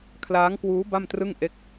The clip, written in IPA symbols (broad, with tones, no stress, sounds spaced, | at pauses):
kʰ l aː˦˥ ŋ k w uː˦˥ b a˥˩ m t r ɯ˥˩ ŋ ʔ e˥˩ k̚